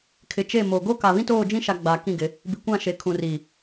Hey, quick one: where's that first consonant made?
velum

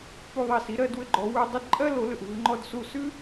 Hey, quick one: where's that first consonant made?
lips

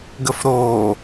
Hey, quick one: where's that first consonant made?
velum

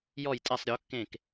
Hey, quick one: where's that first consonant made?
palate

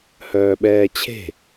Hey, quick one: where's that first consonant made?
throat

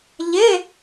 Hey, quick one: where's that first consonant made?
palate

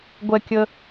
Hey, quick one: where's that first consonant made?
velum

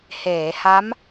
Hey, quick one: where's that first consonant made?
throat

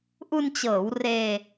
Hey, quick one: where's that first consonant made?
throat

